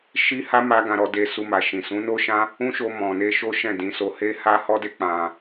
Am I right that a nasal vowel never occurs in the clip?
no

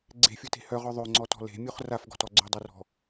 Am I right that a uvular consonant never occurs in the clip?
no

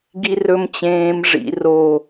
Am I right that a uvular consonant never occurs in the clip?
yes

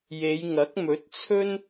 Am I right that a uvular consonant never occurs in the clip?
yes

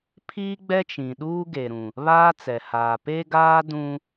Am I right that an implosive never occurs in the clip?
no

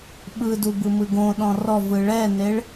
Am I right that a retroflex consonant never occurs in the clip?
no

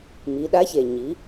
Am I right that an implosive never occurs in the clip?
no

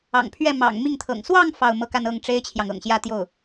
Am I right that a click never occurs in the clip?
yes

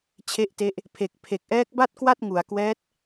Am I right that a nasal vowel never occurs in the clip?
yes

